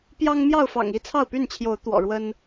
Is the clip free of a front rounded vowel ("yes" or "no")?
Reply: no